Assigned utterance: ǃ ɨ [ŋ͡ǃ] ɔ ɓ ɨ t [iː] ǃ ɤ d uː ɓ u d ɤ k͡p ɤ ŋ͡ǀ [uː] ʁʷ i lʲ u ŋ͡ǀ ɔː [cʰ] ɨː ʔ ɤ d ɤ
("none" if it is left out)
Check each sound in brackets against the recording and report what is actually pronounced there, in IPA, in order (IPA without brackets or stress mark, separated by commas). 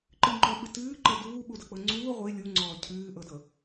ŋ͡ǃ, ɨː, uː, cʰ